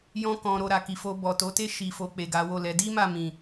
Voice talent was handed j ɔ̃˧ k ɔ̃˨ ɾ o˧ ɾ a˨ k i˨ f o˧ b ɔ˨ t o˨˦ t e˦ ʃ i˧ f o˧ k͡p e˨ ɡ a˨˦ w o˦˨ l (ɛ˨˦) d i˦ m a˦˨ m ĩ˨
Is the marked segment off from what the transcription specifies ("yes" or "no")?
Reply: no